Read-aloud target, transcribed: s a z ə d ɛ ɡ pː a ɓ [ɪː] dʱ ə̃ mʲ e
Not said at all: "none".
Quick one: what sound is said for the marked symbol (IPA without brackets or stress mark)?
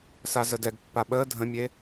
əː